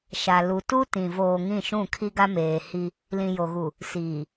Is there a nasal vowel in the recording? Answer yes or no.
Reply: yes